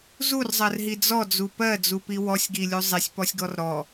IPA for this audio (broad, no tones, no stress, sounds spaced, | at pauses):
z u r zˤ ɜ r ɦ i d͡z ɔ d͡z u p ɜ d͡z u p i w ɔ sʲ ɡ i lʲ u zˤ i sʲ p ɔ sʲ ɡ ɔ r ɾ ɔ